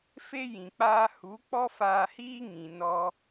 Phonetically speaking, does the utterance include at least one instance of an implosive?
no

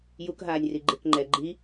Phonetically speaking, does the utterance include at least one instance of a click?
yes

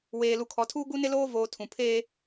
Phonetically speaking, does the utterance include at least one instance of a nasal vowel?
yes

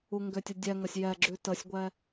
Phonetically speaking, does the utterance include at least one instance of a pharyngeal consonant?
no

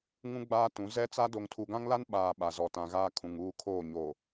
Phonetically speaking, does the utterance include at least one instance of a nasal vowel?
yes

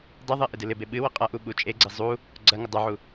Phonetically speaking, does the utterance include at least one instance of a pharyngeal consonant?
yes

